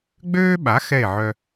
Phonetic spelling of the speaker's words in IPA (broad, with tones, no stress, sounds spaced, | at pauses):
ɡ͡b øː˥ ɓ a˩˥ x ɛ˥˩ e̯ ʕ œ˧